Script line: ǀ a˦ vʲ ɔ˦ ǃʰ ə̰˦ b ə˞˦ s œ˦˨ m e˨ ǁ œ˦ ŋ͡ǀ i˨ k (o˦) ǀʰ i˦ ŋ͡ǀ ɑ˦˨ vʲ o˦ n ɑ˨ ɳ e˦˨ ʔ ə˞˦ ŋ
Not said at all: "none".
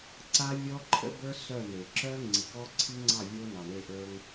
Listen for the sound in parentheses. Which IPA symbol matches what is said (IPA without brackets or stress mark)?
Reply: ɔ˦